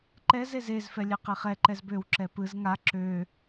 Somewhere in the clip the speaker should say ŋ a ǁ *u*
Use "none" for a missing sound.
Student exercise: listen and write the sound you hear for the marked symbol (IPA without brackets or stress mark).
ø